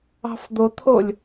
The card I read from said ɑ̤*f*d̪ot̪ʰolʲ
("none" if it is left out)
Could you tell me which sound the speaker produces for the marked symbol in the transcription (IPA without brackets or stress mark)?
f